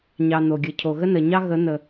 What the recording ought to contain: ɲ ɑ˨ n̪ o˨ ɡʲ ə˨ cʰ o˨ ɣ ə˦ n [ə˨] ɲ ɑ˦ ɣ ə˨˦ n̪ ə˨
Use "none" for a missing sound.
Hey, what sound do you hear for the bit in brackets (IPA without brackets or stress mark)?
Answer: ə˨